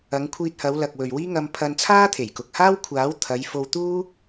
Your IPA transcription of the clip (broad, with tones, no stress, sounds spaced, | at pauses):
ɐ˨˧ ŋ kʷʰ iː˧ t̚ h ɐ˨˧ w l ɐ˨ k̚ w ɵ˨ ɥ w iː˥ ŋ ɐ˧ m pʰ ɐ˧ n t͡sʰ aː˥ t̪ʰ e˨˩ j k ʊ˨ k̚ h aː˥ w kʷʰ aː˨˥ w t̪ʰ ɐ˨˧ j f o˧ w t̪ uː˥